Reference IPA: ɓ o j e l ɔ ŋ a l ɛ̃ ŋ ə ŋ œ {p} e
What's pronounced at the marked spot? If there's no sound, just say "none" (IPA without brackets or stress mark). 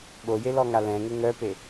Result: p